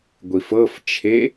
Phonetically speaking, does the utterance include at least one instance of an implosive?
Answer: no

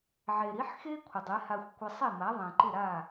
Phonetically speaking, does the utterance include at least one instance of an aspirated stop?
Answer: yes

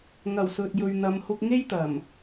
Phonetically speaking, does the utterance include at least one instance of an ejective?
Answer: no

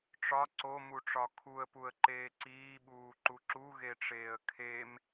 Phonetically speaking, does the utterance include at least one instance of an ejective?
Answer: no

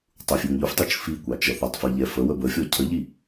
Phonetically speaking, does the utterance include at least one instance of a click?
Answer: no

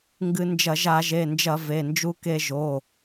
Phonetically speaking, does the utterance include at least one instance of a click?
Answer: no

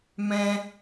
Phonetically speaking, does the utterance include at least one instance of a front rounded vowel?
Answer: no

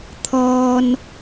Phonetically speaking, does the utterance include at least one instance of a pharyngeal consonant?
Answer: no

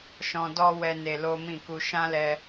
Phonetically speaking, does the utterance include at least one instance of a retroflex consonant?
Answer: no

